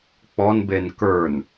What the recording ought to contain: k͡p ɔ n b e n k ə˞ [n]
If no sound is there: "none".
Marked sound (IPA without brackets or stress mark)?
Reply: n